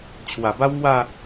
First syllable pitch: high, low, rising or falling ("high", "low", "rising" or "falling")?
low